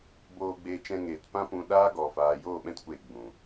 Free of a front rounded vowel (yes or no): yes